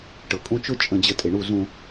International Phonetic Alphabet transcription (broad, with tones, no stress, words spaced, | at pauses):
ʈɤ˨kʼũ˦ t͡ʃʊ˦t͡ʃʼə̃˨d͡ʑə˨ tʼe˨ɳu˦˨ zũ˨